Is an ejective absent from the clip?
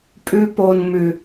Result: no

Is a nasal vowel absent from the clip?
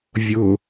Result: yes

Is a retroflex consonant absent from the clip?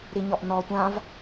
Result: yes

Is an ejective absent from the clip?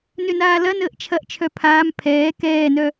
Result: yes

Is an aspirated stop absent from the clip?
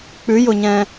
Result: yes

